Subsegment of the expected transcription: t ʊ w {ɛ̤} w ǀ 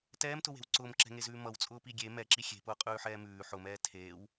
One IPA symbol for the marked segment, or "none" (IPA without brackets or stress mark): e̤